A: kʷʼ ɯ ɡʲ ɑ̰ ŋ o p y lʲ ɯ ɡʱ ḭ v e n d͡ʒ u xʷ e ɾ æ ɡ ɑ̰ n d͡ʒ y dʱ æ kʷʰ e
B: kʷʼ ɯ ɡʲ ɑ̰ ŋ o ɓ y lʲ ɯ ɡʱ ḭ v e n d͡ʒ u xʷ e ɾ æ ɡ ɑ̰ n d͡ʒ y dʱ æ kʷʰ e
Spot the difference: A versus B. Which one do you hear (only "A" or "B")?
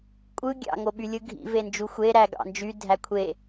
B